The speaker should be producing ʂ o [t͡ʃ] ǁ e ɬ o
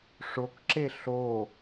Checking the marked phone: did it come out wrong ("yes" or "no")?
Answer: yes